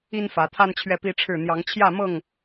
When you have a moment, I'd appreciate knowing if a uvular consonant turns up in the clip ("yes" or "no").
no